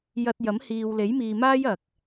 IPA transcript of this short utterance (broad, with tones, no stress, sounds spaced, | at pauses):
j ɐ˧ t̚ j ɐ˨˥ m h iː˨ w l e˨˥ j m iː˨ m aː˥ j ɐ˨ k̚